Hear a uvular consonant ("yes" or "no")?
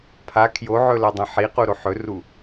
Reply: yes